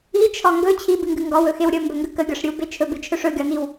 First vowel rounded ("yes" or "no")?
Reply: no